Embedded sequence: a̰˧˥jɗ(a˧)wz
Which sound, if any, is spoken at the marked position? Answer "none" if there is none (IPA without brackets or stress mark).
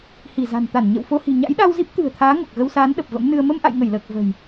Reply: a˧